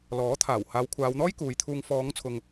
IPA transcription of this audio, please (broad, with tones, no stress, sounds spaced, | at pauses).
l ɔː˨˥ t̪ʰ aː˨˩ w h aː˨˧ w kʷʰ aː˨˧ w n̪ ɔː˥ j k uː˨˧ j t̪ʰ uː˧ ŋ f ɔː˨˧ ŋ t͡sʰ ʊ˨ ŋ